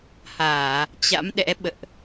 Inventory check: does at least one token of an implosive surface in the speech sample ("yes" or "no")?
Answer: yes